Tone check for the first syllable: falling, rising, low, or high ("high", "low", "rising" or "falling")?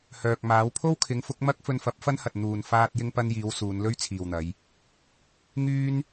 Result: low